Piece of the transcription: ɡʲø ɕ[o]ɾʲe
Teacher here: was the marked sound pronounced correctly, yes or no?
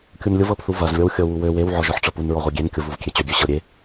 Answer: no